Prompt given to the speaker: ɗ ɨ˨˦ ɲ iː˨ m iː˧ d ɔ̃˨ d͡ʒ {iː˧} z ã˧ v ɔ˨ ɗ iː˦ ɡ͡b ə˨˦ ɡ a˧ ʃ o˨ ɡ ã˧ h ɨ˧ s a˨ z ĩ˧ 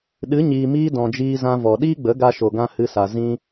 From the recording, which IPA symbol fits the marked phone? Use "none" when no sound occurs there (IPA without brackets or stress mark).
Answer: iː˧